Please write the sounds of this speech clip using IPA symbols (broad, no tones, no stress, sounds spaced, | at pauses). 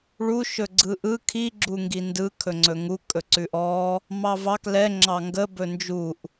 ɭ u ʃ ɵ ɡ͡ǀ ɯ ʔ ɯ kʰ i ɡ͡ǁ u ŋ ɡ i n d ɯ kʰ ɵ ŋ͡ǀ ɵ ŋ u kʼ ɵ ǀ ʉ ʔ ɔ | m ɑ v ɑ k l ɛ ŋ͡ǁ ɑ ŋ ɡ ə b ɵ n d͡ʒ u ʔ